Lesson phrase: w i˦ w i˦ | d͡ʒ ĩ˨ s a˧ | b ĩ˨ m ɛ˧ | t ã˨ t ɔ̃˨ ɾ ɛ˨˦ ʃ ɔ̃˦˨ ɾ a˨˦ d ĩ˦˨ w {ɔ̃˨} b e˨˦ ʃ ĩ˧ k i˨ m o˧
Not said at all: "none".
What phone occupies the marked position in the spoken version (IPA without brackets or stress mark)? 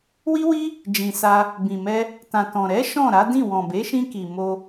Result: ɔ̃˨